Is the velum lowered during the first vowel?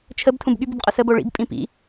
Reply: no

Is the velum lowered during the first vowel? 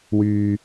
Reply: no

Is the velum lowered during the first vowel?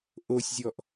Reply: no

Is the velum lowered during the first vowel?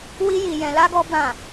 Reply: no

